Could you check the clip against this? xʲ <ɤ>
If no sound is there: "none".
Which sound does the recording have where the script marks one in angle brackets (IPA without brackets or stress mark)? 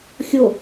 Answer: o